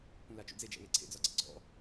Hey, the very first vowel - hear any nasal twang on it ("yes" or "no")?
yes